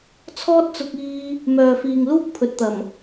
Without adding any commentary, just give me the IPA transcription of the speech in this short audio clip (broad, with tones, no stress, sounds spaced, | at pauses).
t͡sʰ ɔː˥ t̚ t͡s ʊ˧ k̚ iː˧ | m œː˨ f iː˨ ŋ l uː˥ k̚ pʰ ɵ˨˥ t̚ t̪ ɐ˨˩ m